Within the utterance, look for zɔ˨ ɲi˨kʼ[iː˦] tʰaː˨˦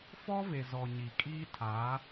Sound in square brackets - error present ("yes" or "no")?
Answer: no